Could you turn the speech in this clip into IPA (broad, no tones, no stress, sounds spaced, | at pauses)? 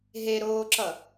ɦ e ɾ oː ǁ ʌ